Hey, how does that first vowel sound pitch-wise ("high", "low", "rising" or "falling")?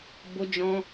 high